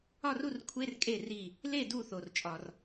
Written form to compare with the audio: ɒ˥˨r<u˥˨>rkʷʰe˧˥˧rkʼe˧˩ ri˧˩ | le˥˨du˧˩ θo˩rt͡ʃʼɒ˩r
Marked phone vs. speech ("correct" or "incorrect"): correct